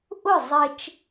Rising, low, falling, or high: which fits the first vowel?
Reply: falling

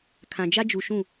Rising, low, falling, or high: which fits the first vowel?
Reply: low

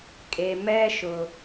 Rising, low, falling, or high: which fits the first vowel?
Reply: low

